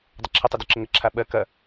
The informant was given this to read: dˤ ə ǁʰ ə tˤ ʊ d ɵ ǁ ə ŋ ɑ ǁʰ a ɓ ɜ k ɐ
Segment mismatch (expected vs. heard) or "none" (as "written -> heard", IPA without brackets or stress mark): ɑ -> ə